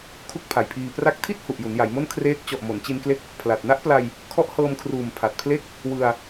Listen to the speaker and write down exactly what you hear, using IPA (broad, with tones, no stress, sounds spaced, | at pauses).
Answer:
kʰ u˥˩ k̚ pʰ a˨˩ j pʰ iː˧ p r a˦˥ k̚ tʰ i˥˩ t̚ h u˨˩ ʔ j u˩˦ n j a˩˦ j m o˥˩ n kʰ r eː˦˥ k̚ t͡ɕ ɔ˨˩ ʔ m o˩˦ n t͡ɕ i˧ n k l e˦˥ k̚ | pʰ l a˨˩ t̚ n a˦˥ ʔ p l a˧ j | kʰ ɔ˦˥ ʔ h ɤː˧ m kʰ r uː˨˩ m pʰ a˨˩ t̚ pʰ l e˥˩ k̚ | w ɯ˧ a̯